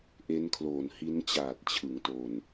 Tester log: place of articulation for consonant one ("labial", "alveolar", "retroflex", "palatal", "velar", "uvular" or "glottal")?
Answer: glottal